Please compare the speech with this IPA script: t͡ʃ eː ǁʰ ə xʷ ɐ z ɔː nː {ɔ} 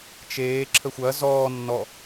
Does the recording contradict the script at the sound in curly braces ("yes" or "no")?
no